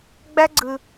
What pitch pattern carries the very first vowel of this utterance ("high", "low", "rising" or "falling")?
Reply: high